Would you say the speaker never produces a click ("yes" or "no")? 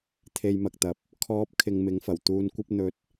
yes